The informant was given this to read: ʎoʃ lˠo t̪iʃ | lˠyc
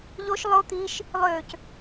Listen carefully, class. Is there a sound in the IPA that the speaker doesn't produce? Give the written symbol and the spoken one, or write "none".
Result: y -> ø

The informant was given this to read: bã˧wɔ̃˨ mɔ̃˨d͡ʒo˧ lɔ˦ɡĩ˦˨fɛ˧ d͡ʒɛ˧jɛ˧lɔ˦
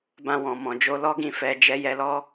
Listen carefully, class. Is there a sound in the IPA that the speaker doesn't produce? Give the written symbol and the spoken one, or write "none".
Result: none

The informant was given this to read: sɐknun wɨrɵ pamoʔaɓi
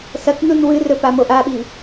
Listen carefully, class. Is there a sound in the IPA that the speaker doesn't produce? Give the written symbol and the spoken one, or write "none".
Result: none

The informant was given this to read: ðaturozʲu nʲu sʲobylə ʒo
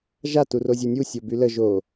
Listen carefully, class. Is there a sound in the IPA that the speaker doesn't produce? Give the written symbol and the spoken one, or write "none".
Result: ð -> ʒ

